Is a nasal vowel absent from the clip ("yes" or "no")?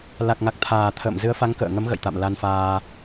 yes